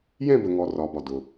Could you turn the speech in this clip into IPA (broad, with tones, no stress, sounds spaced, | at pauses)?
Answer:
j ɛ̃˦˨ b ə˩ ŋ ɔ˩ r ɒ˩ b ɒ˩ d ʊ˩